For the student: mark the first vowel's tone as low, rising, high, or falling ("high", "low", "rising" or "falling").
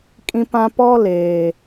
high